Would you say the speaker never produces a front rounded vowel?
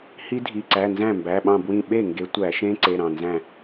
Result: yes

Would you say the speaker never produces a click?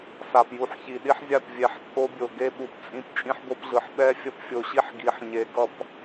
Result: yes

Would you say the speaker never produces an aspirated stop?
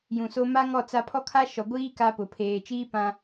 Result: no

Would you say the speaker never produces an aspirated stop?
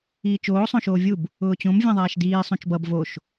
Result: yes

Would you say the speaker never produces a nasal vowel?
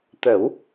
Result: yes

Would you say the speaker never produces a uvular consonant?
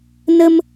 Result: yes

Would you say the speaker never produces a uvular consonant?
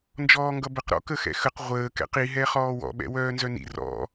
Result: no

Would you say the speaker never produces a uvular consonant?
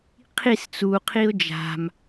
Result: no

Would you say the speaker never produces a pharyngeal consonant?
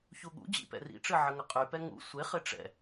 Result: no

